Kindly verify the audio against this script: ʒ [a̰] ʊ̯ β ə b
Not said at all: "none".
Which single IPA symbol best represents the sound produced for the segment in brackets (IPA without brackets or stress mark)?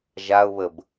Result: a